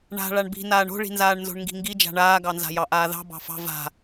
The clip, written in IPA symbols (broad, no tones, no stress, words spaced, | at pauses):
ɳa̤ ɭaɳbi̤ naːɳo̤ɭi̤nzaːɳ nzo̤ɳŋɡi̤ŋɡi d͡ʒa̤ɳaːɡɑnza̤ jɑʔaːðɑ̤ bɑ̤fɑ̤ va̤